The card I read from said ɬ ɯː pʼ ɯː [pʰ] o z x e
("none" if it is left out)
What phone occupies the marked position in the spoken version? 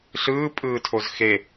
tʰ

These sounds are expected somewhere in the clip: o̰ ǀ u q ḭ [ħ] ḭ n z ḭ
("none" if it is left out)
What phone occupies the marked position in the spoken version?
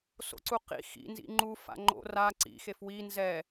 x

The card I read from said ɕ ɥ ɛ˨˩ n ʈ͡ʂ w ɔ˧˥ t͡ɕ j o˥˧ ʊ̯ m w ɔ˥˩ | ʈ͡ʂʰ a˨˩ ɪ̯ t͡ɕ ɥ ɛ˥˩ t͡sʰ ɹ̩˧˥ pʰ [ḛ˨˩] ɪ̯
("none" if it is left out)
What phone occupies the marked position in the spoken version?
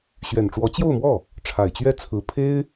e˥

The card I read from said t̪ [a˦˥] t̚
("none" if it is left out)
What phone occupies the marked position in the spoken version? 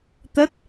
ə˦˥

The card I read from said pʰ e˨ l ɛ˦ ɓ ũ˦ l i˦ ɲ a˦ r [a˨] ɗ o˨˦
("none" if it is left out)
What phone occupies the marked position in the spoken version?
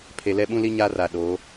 a˨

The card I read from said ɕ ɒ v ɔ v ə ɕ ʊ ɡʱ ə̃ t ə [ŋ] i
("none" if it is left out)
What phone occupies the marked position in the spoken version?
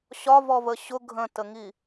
ŋ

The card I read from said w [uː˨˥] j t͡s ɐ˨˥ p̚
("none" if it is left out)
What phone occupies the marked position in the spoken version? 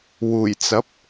uː˨˩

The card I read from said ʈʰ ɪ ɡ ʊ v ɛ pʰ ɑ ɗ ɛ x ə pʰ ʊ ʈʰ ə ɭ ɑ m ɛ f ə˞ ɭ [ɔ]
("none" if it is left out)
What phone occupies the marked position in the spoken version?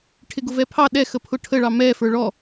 ɔ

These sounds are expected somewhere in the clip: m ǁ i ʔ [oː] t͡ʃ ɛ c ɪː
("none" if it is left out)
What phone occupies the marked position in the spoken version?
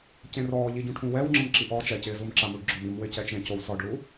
ɔː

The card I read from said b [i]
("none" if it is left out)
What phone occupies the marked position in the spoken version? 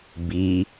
i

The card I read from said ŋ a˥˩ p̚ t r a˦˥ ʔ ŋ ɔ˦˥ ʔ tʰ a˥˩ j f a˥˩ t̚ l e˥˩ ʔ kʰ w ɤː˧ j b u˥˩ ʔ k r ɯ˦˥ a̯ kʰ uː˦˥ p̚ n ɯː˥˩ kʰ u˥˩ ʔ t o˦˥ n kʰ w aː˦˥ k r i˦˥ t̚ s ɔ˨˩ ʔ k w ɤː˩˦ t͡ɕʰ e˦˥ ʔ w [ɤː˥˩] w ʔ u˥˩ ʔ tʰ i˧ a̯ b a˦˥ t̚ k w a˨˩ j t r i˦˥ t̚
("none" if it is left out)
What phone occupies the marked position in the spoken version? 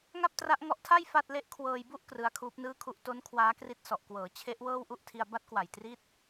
ɤː˥˩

